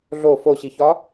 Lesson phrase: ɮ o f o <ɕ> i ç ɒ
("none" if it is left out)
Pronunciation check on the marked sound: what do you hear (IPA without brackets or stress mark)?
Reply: ɕ